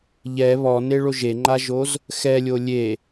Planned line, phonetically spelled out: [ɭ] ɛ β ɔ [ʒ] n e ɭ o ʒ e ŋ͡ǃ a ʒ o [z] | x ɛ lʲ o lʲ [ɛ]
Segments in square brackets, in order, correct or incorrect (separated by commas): incorrect, incorrect, correct, incorrect